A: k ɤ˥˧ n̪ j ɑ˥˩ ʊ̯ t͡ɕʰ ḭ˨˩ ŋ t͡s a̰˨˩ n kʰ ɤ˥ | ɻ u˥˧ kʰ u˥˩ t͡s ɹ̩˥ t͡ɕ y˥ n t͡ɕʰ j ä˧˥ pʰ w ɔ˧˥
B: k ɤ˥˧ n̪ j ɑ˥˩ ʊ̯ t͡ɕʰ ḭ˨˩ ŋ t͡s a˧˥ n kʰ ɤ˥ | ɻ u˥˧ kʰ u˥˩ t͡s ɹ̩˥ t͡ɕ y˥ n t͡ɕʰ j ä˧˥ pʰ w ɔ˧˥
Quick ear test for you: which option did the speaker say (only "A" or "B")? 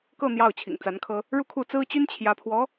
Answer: B